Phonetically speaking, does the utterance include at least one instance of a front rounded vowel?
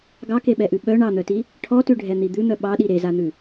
yes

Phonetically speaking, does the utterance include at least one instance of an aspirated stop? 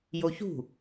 no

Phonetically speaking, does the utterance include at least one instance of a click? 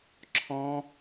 yes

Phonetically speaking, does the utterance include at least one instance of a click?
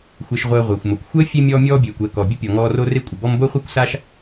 no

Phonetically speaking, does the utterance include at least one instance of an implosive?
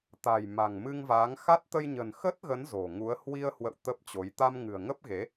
no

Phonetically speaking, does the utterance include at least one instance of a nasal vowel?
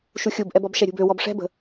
no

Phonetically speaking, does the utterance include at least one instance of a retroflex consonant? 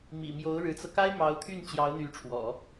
yes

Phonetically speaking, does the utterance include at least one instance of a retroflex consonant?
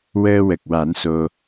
no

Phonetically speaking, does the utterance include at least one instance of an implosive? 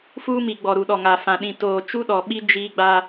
yes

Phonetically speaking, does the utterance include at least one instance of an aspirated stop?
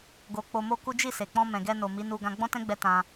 no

